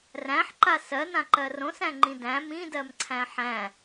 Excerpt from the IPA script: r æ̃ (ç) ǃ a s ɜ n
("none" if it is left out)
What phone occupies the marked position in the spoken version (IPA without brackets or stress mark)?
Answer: ħ